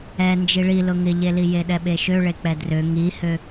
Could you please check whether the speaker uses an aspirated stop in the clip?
no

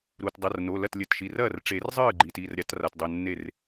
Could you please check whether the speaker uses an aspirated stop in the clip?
no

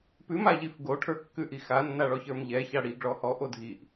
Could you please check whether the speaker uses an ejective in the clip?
no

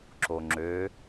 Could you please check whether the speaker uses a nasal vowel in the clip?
no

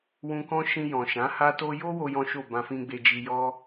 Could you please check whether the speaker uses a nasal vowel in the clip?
yes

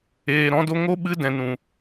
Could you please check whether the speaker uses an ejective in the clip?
no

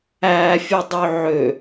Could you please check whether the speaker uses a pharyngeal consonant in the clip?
yes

